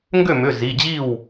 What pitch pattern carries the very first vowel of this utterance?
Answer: falling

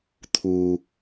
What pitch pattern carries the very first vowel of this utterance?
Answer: low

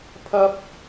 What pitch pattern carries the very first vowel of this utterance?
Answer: high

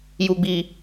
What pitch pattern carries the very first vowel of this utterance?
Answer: low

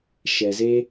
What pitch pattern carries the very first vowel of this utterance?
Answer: low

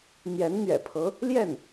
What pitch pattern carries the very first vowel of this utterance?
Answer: rising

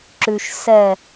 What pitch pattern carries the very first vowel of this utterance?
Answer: low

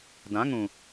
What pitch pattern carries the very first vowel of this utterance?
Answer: rising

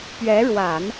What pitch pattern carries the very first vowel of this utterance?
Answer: rising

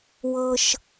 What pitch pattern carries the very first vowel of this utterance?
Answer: high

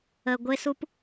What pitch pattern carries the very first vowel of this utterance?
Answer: low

